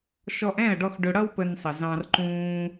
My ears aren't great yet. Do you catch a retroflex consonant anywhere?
yes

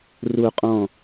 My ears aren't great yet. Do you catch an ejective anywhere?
yes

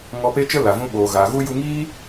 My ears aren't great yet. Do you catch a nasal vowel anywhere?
yes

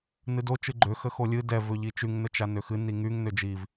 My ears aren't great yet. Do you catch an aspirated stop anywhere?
no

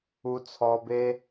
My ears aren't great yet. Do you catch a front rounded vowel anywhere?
no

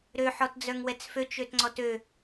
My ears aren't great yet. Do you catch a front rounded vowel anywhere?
yes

